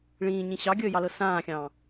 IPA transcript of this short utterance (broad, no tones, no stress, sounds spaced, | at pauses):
ɭ ĩː ɲ ĩ ɕ ɑ ɡʲ əː j ɑ l ɤ s ãː xʲ ɑ̃ː